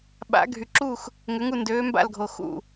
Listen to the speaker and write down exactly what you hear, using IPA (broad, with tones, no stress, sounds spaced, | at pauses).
ɓ a̰˨˦ ɡʱ y˨ ǁ u˦˨ x | ŋ ʏ˨˦ ŋ u˦˨ n d øː˨˦ m b a̰˦˨ l ɡʱ o˨ x ṵ˦˨